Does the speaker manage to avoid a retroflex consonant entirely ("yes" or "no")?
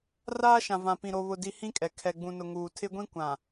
yes